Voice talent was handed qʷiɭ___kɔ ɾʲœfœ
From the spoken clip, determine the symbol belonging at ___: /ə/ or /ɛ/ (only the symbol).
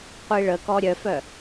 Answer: ə